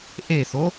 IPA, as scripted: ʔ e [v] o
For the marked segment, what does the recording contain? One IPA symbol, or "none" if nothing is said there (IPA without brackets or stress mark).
θ